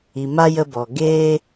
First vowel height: high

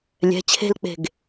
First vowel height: mid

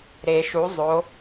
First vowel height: mid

